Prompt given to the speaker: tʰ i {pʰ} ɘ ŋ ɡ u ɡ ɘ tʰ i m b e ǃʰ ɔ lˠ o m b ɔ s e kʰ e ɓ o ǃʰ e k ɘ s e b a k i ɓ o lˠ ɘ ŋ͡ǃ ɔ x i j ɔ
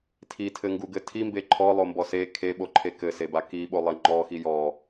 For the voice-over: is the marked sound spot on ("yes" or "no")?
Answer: no